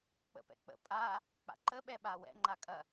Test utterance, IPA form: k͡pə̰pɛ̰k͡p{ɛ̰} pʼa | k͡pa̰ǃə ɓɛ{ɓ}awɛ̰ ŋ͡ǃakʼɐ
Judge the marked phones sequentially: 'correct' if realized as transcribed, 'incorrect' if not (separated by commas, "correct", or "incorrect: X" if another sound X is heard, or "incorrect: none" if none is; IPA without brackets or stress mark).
incorrect: ə̰, correct